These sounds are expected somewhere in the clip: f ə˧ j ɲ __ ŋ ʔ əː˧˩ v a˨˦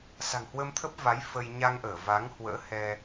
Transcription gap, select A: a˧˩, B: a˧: B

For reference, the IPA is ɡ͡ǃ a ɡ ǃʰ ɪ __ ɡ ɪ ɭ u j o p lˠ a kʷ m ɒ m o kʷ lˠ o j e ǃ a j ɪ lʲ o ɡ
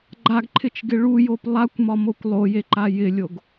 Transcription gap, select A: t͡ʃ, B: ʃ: A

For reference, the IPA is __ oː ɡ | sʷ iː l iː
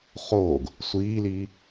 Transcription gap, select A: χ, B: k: A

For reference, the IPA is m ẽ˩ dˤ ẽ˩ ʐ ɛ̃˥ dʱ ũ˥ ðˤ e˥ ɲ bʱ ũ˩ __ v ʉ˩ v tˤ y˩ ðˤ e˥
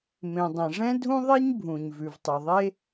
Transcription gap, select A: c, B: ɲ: B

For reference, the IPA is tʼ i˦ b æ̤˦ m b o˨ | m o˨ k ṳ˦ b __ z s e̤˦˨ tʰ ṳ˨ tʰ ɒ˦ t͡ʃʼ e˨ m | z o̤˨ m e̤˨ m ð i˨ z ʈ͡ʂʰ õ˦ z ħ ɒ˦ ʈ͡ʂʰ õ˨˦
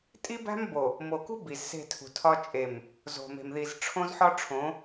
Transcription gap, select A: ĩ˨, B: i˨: B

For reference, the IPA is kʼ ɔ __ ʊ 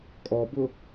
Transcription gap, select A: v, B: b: B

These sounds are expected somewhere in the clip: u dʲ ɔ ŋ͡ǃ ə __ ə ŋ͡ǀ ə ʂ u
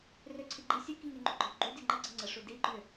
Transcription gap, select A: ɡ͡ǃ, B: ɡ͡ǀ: B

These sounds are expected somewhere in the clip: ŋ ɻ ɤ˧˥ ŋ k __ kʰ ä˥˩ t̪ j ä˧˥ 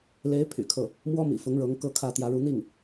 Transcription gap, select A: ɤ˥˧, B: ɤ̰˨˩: A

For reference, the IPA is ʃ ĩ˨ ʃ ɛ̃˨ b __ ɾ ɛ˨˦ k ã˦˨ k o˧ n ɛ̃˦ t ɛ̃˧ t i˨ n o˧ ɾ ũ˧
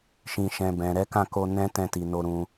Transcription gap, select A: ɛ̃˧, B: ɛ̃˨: B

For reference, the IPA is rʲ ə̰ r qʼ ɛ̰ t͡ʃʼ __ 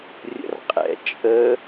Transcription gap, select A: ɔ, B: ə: B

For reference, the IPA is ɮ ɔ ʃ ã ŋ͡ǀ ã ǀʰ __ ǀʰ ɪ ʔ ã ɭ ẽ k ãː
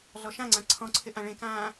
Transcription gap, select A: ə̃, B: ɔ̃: B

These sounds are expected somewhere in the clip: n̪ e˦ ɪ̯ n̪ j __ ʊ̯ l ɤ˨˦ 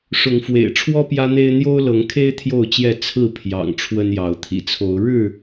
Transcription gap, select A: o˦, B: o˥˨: A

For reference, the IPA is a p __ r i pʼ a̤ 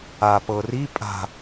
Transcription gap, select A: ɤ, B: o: A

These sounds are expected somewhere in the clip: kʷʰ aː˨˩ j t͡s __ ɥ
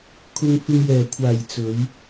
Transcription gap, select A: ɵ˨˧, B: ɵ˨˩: A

